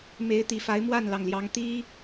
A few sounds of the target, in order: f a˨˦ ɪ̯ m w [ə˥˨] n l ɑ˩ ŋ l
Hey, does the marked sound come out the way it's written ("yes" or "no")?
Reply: no